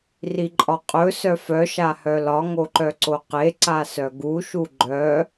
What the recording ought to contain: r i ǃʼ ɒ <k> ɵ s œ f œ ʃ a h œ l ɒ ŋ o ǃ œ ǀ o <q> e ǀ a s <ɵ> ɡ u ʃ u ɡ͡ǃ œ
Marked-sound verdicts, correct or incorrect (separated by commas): incorrect, correct, incorrect